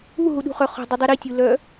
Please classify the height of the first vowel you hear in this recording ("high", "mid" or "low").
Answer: high